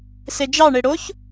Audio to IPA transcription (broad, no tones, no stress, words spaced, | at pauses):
sed͡ʒɑɳe ɽoç